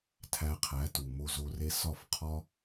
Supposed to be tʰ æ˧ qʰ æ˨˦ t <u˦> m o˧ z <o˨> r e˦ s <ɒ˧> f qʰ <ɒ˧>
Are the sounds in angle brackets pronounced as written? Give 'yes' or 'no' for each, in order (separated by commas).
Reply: no, no, no, no